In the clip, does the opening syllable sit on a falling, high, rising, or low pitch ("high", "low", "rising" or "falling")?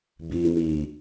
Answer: low